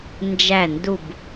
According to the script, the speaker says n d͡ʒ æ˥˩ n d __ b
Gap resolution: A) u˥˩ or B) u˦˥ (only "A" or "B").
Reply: A